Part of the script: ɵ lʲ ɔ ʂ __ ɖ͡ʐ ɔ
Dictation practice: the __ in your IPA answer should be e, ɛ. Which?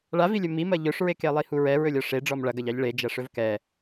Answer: e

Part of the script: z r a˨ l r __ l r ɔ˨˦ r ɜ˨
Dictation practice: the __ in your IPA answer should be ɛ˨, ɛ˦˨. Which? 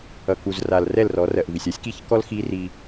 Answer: ɛ˦˨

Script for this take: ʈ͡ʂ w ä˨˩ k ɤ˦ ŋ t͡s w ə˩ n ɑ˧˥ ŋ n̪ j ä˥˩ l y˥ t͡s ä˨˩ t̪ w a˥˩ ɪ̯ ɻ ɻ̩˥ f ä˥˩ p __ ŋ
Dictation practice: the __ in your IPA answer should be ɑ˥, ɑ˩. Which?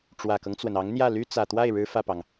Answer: ɑ˩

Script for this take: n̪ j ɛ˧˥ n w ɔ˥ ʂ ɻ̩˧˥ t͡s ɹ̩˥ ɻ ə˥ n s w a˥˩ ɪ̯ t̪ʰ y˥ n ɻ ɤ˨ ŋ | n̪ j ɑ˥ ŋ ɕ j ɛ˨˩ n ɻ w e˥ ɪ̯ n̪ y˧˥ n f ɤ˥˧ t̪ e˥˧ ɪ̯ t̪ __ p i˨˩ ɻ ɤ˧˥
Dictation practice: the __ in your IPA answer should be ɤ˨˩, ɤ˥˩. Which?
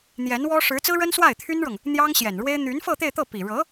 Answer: ɤ˥˩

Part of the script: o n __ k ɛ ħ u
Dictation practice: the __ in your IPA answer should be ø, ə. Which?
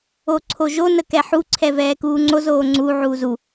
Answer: ə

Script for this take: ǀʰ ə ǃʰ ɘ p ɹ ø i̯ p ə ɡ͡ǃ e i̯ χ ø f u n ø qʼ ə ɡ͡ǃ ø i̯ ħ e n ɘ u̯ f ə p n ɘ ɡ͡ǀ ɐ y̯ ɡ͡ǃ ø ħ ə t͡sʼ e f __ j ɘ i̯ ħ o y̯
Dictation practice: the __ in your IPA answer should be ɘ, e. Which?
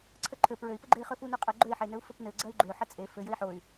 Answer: ɘ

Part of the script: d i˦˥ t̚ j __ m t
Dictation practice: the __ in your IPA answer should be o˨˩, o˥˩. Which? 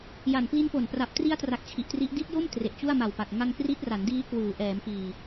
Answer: o˥˩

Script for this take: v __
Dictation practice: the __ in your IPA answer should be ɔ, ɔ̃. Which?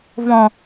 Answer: ɔ̃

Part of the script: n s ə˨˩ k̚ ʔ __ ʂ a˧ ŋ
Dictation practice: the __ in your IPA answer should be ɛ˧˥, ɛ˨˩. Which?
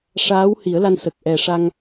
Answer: ɛ˨˩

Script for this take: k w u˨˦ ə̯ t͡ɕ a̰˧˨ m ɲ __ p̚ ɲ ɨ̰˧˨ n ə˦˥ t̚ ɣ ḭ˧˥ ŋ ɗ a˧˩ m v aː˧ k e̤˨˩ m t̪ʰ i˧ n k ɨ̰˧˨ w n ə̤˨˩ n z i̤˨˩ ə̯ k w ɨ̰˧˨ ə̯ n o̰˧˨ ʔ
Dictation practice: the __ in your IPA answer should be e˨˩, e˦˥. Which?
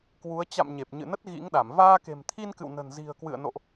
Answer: e˨˩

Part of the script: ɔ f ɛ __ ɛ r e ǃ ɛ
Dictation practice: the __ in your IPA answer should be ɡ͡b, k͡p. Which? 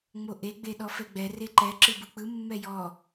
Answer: ɡ͡b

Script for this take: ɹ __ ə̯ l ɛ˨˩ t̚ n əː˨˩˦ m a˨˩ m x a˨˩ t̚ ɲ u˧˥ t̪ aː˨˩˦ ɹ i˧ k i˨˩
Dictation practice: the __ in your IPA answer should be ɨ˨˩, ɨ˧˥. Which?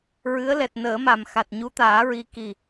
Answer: ɨ˧˥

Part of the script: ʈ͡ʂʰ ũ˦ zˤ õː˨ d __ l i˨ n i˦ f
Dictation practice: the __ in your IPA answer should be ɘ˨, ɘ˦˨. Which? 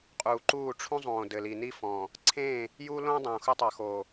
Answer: ɘ˨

